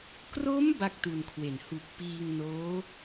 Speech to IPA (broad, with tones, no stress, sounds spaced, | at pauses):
k r o˦˥ m b a˥˩ k̚ t u˧ n kʰ w e˨˩ n h u˨˩ k̚ p iː˧ ŋ n oː˦˥